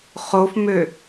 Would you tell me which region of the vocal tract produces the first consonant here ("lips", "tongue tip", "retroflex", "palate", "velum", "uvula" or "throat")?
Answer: uvula